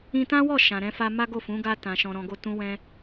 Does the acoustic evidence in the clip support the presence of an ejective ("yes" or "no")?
no